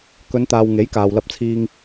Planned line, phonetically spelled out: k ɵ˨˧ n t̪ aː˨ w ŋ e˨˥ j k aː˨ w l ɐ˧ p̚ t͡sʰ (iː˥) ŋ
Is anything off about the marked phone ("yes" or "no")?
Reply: yes